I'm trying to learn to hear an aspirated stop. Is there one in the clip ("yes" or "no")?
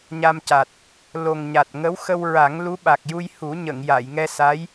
no